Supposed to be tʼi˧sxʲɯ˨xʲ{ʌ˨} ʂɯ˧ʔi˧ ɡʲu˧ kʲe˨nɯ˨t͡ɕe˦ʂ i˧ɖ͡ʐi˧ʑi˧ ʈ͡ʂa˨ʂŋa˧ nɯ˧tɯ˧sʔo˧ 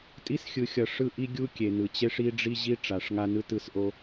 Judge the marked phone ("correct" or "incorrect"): correct